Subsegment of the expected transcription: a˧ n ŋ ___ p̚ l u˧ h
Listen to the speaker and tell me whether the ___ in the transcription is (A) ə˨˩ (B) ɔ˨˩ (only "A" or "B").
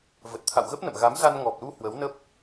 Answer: B